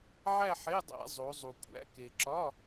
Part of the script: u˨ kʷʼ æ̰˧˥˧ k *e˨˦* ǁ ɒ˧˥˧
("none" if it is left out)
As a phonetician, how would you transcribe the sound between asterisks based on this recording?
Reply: e˨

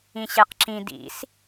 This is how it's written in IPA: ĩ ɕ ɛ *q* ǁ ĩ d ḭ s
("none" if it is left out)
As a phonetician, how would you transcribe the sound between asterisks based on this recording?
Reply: q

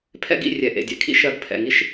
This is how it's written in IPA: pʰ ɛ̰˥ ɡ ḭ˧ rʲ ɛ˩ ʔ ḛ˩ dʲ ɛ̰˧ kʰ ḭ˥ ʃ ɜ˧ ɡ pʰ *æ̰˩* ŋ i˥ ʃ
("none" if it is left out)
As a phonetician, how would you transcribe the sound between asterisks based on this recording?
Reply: ɛ̰˩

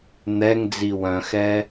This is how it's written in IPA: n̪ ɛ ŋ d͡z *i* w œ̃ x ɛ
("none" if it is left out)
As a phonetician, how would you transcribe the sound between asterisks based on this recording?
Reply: i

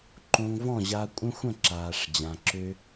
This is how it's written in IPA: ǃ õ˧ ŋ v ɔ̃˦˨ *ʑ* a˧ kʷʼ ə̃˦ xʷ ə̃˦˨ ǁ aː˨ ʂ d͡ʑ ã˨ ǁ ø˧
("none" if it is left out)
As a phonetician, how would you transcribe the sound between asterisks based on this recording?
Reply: ʑ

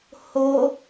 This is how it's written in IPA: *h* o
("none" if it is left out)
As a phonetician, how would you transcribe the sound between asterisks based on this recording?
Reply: h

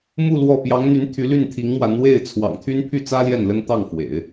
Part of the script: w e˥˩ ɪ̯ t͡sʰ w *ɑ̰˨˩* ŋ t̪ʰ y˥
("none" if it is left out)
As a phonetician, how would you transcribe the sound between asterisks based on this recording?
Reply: ɑ̰˨˩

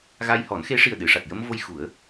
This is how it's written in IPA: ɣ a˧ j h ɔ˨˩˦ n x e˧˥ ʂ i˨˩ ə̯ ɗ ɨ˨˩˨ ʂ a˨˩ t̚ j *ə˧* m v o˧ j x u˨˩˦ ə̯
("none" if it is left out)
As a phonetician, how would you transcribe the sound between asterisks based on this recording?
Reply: ə˧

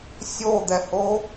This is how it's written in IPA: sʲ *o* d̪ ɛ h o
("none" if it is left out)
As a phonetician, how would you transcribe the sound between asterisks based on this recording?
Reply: o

